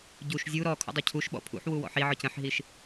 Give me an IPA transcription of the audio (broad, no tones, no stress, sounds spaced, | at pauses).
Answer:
ɟ u ʃ zʲ u ɾ ɔ kʰ ṵ dˤ ø cʰ u ʃ ɓ ɔ̰ pʰ ṵ ħ w u w ɔ̰ ħ i ʕ ɔ c ə̃ ħ ɦ i ʃ